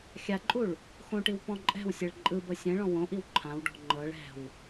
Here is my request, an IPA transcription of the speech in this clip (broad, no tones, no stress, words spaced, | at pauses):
xʲaǃʼuɭ | xõʈiw pɔ̃ǃʼɛ̤wsʲeɭ ǃʼɯbɤ sʲɛ̃ɭɔ̃ wõʔiw ǃʰãwɖɔ̤ ŋ͡ǃɤɭ ɛ̤w